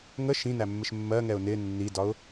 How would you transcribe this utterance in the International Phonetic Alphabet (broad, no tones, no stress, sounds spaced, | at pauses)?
ŋ ə ʃ ĩ n æ mː ɪ ʃ mː ɜ ŋ ɛ ʊ̯ n ɪ nː i d ɒ ʊ̯